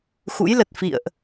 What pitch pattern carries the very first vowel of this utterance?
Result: rising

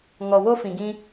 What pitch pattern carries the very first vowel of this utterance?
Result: low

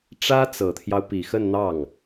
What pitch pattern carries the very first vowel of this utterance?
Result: high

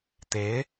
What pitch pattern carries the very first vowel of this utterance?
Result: rising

